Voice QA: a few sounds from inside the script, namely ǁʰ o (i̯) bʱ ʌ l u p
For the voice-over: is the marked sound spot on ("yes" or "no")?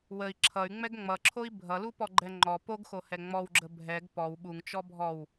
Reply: yes